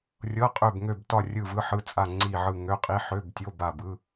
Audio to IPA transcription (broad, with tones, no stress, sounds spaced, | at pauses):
rʲ ɤ˧˥˧ qʼ ø˦˨ b ŋ ø˦˨ b t ɒ˦˨ rʲ ɯ˦˨ v ɯ˧˥˧ ħ ɯ˧˥˧ t͡sʼ a˦˨ ŋ͡ǀ i˦˨ ʕ ɯ˦˨ ŋ ø˧˥˧ qʼ i˧˥˧ ħ ø˧˥˧ b tʲ o˧˥˧ b a˦˨ b ɯ˧˥˧